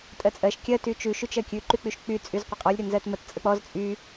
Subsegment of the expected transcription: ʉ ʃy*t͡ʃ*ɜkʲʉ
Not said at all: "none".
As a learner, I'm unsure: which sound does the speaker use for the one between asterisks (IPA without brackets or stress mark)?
t͡ʃ